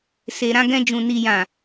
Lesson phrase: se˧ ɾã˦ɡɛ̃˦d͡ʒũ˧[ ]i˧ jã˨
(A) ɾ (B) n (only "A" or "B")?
B